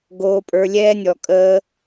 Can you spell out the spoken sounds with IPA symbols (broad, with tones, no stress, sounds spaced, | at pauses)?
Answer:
ɡ oː˧ pʼ ə˞˧ lʲ ɛː˦ nʲ ɔ˨ kʼ əː˦